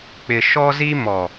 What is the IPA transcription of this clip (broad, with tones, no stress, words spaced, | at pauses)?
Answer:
k͡pɪ˨ʃɔ˦zi˦mɔ˨